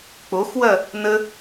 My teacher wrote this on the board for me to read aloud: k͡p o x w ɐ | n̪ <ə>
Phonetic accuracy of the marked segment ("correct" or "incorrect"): correct